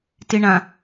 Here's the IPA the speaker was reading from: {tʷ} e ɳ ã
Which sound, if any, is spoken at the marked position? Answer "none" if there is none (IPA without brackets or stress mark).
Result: t